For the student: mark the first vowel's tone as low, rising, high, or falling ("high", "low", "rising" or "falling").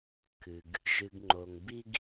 low